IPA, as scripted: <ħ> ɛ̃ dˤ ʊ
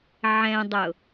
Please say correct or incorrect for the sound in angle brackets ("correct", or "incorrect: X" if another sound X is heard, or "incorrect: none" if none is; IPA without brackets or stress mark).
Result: incorrect: ʕ